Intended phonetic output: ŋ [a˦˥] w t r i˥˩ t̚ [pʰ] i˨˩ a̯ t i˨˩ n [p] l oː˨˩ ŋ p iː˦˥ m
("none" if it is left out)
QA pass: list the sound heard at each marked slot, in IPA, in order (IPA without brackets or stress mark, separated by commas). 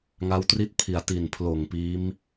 a˦˥, pʰ, pʰ